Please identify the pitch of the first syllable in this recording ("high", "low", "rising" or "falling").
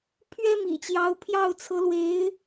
high